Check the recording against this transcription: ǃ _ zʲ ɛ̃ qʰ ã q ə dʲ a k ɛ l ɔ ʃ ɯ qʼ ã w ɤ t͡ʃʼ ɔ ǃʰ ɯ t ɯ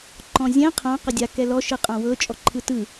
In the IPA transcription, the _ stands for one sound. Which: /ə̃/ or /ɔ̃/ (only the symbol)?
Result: ɔ̃